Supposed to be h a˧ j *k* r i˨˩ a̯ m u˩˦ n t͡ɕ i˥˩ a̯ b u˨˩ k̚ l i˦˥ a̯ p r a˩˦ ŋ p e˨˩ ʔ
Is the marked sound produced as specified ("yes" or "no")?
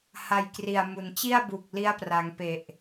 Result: yes